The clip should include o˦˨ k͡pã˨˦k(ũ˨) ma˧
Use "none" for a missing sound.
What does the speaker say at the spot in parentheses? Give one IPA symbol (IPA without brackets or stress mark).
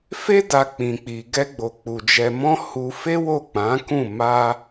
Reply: ũ˦˨